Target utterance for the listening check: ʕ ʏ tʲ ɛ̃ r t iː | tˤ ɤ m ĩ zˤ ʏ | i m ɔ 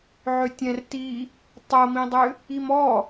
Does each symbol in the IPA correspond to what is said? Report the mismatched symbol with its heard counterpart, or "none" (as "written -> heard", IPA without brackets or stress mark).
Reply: zˤ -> dˤ